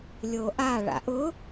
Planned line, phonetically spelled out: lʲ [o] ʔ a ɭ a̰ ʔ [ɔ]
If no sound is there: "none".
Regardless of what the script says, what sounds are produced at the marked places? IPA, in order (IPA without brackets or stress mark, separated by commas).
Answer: o, ʊ